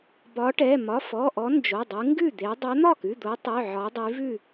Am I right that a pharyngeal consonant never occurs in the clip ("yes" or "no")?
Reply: no